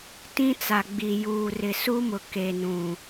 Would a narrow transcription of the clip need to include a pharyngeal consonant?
no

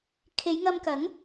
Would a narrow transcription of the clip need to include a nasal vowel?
no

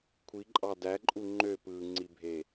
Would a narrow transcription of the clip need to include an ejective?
yes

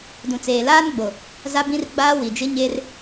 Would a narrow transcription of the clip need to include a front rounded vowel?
no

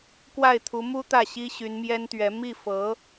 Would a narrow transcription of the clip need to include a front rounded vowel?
yes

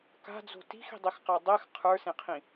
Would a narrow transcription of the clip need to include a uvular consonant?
yes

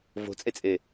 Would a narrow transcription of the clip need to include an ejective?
yes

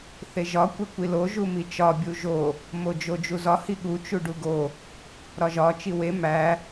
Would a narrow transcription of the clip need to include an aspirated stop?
no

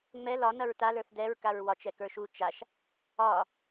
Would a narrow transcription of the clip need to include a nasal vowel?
no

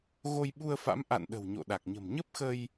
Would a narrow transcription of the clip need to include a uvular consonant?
no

